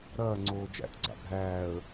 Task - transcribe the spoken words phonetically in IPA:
ɾɐːŋ͡ǀoː d͡ʒæ̰tɡ͡ǀa̰ bʱæːə̯

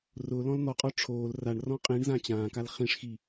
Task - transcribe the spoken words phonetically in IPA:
rʊ lɔ̃ln̪ɔqʼɔ ʈ͡ʂʰoːl raɳ rɔ̃qʼĩɳzã t͡ɕãːkal χĩʂxi

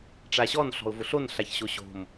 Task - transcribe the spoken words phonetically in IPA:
ʈ͡ʂaɕɔn ɬɔ̤ʊ̯vʊɬon ɬaçɕoɕo̤m

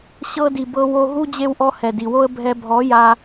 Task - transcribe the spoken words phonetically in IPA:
ɕɤ˧di˨ bɤ˧ wo˧ɦu˦ d͡ʑe˧wʔɔ˧hɛ˨ di˨wo˦ə̯ bʱɛ˧ bʱɔ˨˦ja˧

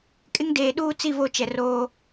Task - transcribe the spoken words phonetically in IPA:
kʼɪ˦ŋdeː˨ ɗuː˦t͡si˦˨ vo˦t͡ʃɛ˨ roː˦

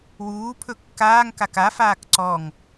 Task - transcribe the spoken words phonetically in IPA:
wuːpʰɵ kːaːŋkak afaːk ǀɔŋ

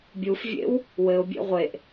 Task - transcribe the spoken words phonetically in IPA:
bʲufvʲḛw | wɘʊ̯bʲḛ ʁʷeʔ

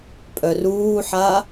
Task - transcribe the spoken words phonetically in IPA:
pʼœruːħa

